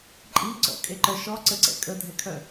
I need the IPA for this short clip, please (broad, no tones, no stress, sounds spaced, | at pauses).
ǃʼ i ǀ ɔ̰ kʼ e ǃ œ ʃ ɔ ǀ ə ǀ ɛ̰ kʼ ə dʱ ɛ kʰ œ